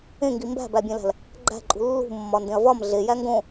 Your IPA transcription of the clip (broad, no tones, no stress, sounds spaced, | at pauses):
ẽ ŋ ɡ i m b æ̤ b æ bʲ ẽ l æ̤ l | ɡ͡ǃ æ̤ ǃʼ ṳ lː ṳ mː ɒ n d ẽ ɐ̯ v ɒ m ɮ e j æ ŋ ɡ õ